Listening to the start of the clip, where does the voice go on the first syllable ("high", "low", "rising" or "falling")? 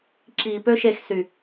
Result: low